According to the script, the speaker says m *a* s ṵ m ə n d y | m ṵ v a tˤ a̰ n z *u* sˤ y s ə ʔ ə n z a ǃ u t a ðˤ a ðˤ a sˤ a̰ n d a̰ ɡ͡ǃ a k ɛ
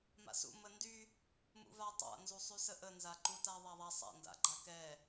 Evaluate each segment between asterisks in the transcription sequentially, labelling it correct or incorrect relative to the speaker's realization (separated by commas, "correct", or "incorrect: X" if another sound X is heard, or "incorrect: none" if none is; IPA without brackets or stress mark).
incorrect: a̰, correct